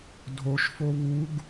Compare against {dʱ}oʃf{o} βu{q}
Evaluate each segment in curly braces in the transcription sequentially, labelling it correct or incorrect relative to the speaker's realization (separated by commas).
correct, correct, incorrect